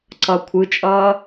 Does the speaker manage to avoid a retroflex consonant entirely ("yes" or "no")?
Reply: yes